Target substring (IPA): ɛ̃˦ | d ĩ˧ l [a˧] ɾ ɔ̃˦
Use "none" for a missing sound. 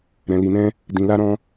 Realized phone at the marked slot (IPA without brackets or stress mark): a˦